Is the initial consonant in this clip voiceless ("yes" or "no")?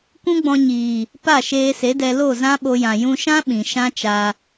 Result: yes